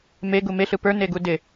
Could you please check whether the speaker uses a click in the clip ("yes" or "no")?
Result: no